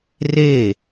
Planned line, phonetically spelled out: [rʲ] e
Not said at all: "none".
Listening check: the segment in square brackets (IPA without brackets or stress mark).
r